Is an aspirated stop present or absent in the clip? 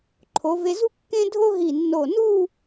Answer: present